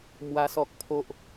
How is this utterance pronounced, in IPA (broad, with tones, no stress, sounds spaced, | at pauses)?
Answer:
m w a˦ s ɔ˦ k̚ pʰ o˦ ʔ